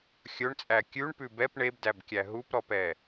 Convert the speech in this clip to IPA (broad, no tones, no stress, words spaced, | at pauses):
xʲɵɳt͡sʼæ kʲʉɳpʉ bɛp ɳebdæbkʲæ ɦupɾɔpɛ